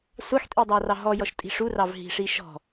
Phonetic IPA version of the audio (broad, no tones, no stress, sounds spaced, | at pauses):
sʷ ɑ x tʼ i dˤ ɑ r ɑ ɦ ɔ j ɔ ʃ tʼ i̤ ʂ u r ɑ v ɦ i̤ ʂ i ʃ ɔ̤